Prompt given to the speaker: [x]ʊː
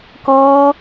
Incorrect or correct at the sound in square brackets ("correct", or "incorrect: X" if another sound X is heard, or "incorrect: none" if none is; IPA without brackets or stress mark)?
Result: incorrect: k